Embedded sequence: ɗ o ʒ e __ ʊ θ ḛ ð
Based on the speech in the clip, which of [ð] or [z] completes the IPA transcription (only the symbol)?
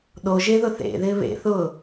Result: ð